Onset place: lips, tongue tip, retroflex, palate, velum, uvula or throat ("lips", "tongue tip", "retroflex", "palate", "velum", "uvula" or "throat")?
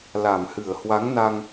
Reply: tongue tip